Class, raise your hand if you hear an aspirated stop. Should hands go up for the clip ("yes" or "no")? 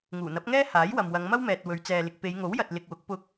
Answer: no